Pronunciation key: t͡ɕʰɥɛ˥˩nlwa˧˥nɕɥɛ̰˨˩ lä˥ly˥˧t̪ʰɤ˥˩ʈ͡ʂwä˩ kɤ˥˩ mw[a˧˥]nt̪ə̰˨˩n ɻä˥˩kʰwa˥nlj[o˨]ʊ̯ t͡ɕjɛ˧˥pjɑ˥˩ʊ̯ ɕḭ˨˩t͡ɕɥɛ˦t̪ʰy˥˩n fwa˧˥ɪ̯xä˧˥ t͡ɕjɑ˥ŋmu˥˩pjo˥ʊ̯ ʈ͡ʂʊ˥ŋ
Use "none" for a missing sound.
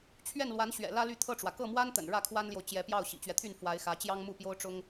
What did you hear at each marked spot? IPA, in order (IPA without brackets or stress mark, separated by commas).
a˥, o˨